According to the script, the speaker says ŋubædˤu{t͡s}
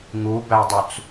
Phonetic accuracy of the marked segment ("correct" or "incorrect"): correct